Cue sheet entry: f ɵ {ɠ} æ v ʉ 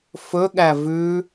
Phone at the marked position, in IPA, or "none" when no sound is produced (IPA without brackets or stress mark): ɠ